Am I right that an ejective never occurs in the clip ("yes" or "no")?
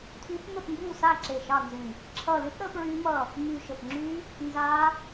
yes